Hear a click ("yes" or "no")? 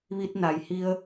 no